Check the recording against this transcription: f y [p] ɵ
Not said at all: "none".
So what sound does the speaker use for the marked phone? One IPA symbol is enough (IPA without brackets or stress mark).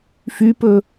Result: p